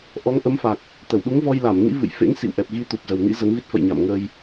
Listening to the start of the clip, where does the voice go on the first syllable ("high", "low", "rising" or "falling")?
rising